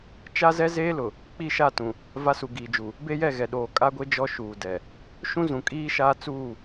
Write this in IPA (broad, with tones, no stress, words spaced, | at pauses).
t͡ʃa˦zɛ˦zeː˦lʊ˨ | k͡pi˦˨ʃa˦˨tũ˨ | va˦su˨ɡiː˨d͡ʒu˨ | be˦jɛ˦˨ɣɛ˨ ɗoː˨kʼa˦ɡʷe˦ d͡ʒɔ˦ʃuː˨ dɛ˨ | ʃũ˦zũ˨kʼiː˦ʃaː˦ t͡suː˦˨